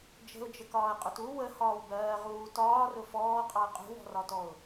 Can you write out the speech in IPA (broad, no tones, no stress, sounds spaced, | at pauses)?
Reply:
d͡ʒ ə̤ ʊ̯ d͡ʒ ə k ɒː ə̯ qʼ ʊ t u w ə h ɒː w b ɜː ʁ uː t ɒː r ʊ f ɔː qʼ ɑ ə̯ qʼ ṳ w ɔ̤ r ɒ t ɔ ʊ̯